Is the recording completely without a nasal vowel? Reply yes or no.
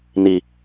yes